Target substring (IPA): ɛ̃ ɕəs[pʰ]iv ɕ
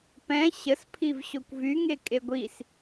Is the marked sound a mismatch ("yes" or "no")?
no